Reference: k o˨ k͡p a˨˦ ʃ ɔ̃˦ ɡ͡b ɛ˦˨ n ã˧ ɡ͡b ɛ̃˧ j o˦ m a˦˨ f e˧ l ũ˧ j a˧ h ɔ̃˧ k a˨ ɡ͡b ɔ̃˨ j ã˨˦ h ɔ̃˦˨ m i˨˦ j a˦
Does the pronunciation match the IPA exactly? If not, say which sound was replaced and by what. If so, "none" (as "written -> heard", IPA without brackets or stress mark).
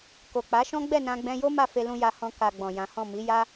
none